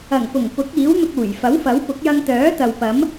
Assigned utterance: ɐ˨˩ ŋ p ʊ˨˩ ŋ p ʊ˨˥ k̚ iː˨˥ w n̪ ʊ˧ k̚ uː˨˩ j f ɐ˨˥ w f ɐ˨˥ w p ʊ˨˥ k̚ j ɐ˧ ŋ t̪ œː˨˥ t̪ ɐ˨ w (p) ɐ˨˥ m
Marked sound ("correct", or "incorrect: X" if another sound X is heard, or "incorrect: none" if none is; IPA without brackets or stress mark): correct